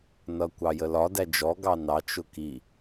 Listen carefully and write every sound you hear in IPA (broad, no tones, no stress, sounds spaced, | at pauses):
n ʌ kʷ ɑ j ə l ɒ d æ d͡ʒ ɔ ɡ ɑ n ɑ t͡ʃ ʊ k i